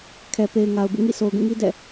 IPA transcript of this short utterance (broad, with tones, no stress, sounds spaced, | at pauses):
kʰ ɛ˨ p e˨ ɪ̯ ŋ a˨ ʊ̯ b ṵ˦˨ ŋ ḭ˦˨ sʰ o˨ ʊ̯ ɡ ũ˦˨ ŋ i˦ d ɛ̰˦˨